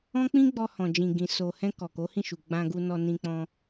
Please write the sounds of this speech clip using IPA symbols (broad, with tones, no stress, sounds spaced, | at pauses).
ɔ̃˦ k͡p ĩ˦ ɡ͡b ɔ˧ h ɔ̃˨ d͡ʒ ĩ˨ ɡ ĩ˨ s o˨ h ɛ̃˧ k ɔ˨ k o˨˦ h ĩ˦˨ ʃ u˨ ɡ͡b ã˧ ɡ u˧ n ɔ˧ n ĩ˧ k͡p ɔ̃˧